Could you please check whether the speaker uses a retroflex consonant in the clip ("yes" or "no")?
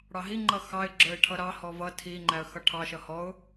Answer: yes